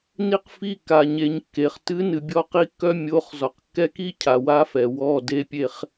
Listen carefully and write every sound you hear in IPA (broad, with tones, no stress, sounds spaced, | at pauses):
n i˦ q f i˦˨ k a˨ ɲ e˨ ɲ kː e˨ χ t ɨ˦ n ɨ˨ bʲ ɔ˦ q i˦ kː œ˦ mʲ o˨˦ χ z ɔ˨ q kː ɛ˦ k i˦ cʰ a˨ w a˦ f ɛ˨ w ɔ˦˨ d e˦ pʲ e˦ χ